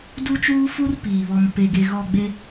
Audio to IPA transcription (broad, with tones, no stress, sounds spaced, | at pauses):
d u˦ t͡ʃ uː˦ f u˦ r p iː˨ β ɔ˦ m p e˦ ɡ e˦ ɣ ɔ˦˨ ɡ͡b e˦